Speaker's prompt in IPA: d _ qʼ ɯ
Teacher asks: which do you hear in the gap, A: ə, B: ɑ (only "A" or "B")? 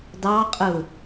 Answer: B